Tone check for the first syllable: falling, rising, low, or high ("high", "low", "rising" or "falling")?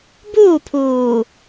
falling